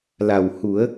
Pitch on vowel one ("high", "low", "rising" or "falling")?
low